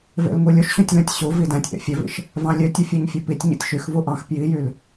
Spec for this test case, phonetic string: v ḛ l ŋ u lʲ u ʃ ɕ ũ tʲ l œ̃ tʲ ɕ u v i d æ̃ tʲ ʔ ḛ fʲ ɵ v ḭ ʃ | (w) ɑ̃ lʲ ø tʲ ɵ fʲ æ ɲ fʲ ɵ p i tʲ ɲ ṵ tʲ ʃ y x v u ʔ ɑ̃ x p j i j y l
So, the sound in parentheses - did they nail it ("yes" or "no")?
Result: no